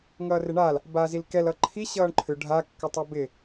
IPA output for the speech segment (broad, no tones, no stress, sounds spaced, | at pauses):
ŋ ʌː r ɪ ɳ a l | b a z i l k ɛ l ʌ ǃʰ i ɕ ʌː ɳ ǃʰ ʏ ɖʱ a kː ʌ tˤ a b ɪ